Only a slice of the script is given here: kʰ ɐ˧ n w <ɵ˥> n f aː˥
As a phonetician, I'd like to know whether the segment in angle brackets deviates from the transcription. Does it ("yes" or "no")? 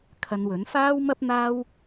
yes